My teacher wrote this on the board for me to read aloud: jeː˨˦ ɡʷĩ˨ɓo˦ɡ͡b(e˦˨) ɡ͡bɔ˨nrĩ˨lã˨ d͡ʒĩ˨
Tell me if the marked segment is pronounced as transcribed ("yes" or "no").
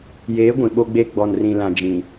yes